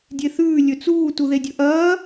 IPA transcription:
dʲ e θ ʉː lʲ ɵ t͡s uː t u ð e dʲ ɵ ʔ ɐː

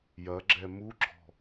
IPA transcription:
j ɐ ɡ͡ǁ ɛ m u ɡ͡ǁ ɔ̤

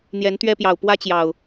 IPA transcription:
n̪ j ɛ˨˦ n t̪ ɥ ɛ˦ p j ɑ˨˩ ʊ̯ p w ä˦ t͡ɕ j ɑ˨˩ ʊ̯

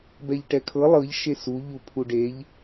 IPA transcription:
b ɛ ʎ ʈ ɛ kʰ ɤ lˠ ɤ ʎ ʃ e s u ʎ u pʰ u ɖ e ʎ

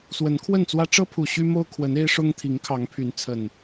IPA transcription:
s w ə˨˦ n kʰ w ə˥˨ n t͡s w ä˦ ʈ͡ʂ ɤ˦ pʰ u˨˩ ɕ y˦ m o˦ ʊ̯ kʰ w ə˨˦ n e˦ ɪ̯ ʂ ʊ˦ ŋ t̪ʰ i˨˦ ŋ kʰ ɑ˨˦ ŋ pʰ y˨˦ n t͡sʰ ə˨˩ n

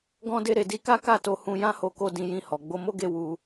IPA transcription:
ɡ ɔ̃˧ d e˧ ɾ e˨ d i˧ k a˦ k a˦˨ t o˧ h ũ˧ j ã˦ h o˧ k o˧ d ĩ˨ j ĩ˨ h ɔ˨ ɡ͡b o˧ m o˦ ɡ e˦˨ w u˧

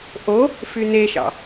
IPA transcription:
ʔ o | f y n̪ e ʃ ɑ̰

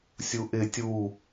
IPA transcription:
sʲ u ʔ ɪ tʲ u

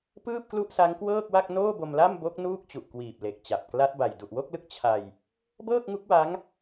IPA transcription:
p ɯː˥˩ p̚ k l u˥˩ ʔ s a˦˥ ŋ k w ɤː˥˩ k̚ w a˥˩ k̚ n oː˥˩ b o˧ m l a˥˩ m b o˦˥ k̚ n uː˥˩ k̚ t͡ɕ u˨˩ ʔ k w iː˨˩ p̚ l e˨˩ k̚ t͡ɕ a˨˩ p̚ k l a˦˥ t̚ b a˨˩ j d u˨˩ ʔ w o˥˩ k̚ l ɯ˦˥ k̚ t͡ɕʰ a˧ j | b ɤː˥˩ k̚ ŋ u˦˥ k̚ w a˦˥ ŋ

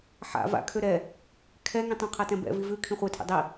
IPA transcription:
ħ a̰ v a̰ kʰ ø ɾ ɛ | kʰ ɛ ŋ ĩ tˤ ã qʰ a t ɛ̃ b ɛ̰ v i v ʉ kʰ ĩ χʷ ɛ tʰ ḛ dˤ i

